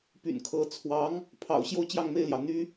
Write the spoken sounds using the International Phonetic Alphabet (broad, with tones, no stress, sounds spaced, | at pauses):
p y̰˨˩ n kʰ ɤ˧˥ t͡sʰ w ɑ˧˥ ŋ | pʰ ɑ̰˨˩ ʊ̯ ɕ j o˥˧ ʊ̯ t͡ɕ j ɑ˥˧ ŋ m e˥˩ ɪ̯ l j ɑ˩ ʊ̯ n̪ y˥